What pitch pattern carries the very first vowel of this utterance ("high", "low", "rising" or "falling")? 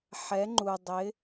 rising